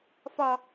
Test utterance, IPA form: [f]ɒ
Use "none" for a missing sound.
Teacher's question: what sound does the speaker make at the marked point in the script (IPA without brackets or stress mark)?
f